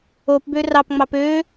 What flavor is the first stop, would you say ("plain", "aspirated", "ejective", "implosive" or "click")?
plain